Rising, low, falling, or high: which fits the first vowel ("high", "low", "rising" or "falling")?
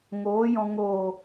rising